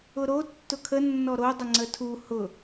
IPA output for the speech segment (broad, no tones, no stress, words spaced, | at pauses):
ʊɾo tːʊkʰə nːɔɾo dˤəŋ͡ǀətʰu hʊ